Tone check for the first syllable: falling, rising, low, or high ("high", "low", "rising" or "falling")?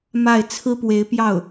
falling